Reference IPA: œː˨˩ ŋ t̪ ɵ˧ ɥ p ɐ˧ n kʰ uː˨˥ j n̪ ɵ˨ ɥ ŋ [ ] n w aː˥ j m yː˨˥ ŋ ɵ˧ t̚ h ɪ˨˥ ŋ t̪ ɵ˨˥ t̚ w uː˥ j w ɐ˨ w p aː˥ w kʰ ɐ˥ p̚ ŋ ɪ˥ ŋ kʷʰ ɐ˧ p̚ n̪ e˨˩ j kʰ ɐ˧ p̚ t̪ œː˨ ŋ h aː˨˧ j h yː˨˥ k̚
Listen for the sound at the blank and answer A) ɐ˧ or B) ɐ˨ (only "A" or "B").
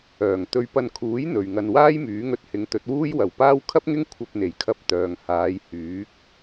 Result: A